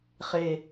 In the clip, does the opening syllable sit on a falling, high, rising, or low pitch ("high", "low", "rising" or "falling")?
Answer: low